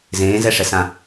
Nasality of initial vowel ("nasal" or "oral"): nasal